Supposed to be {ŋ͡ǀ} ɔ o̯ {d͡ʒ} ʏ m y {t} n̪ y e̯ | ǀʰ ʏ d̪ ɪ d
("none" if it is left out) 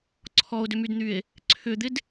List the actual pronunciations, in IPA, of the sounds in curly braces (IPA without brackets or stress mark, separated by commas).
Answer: ǀʰ, d, d